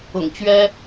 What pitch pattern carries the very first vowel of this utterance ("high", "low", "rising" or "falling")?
low